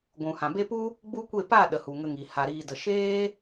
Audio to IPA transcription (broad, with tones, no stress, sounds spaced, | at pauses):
ɡʷ ũ˨ h ã˨ b e˧ p u˦ | ɡ͡b u˦ kʷ e˦˨ p a˦˨ ɗ ə˨ h u˨ ŋ ə˧ ŋ i˨ h a˨ ɾ iː˨ d ə˨ ʃ eː˦